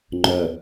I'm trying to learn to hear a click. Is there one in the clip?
yes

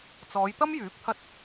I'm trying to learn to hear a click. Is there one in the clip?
no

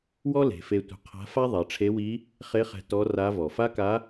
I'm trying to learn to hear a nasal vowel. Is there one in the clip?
no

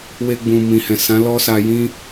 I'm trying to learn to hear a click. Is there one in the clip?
no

